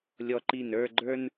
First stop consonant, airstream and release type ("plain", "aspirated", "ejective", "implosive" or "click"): click